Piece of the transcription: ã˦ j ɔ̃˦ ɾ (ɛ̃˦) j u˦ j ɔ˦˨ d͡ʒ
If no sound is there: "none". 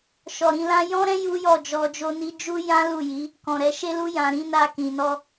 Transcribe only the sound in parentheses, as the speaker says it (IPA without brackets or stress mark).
ɛ̃˦